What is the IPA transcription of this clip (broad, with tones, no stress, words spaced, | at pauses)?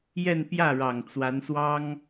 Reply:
jɛ˥˧npjä˥˩ɻɑ˨˩ŋ t͡swa˧˥nswɑ˥ŋ